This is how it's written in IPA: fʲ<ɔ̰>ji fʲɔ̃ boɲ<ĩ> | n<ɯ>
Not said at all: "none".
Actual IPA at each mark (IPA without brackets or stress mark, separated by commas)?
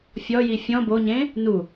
ɔ, ẽ, u